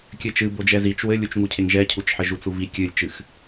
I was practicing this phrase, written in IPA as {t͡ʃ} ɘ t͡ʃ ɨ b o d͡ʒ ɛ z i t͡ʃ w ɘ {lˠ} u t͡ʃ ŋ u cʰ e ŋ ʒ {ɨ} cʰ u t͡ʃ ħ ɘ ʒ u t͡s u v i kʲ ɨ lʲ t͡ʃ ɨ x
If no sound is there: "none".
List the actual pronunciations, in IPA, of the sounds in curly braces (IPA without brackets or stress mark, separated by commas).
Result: kʲ, lʲ, ɛ